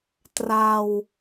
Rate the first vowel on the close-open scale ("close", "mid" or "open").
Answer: open